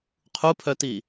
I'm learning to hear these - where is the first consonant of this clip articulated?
uvula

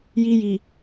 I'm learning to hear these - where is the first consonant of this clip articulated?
palate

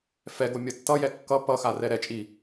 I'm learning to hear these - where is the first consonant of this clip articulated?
lips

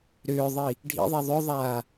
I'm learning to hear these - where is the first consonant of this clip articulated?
tongue tip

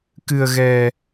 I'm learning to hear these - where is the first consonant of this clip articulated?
velum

